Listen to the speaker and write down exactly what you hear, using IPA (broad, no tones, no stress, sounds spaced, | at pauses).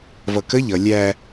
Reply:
v ʌ k ə ʎ ʌ lʲ æ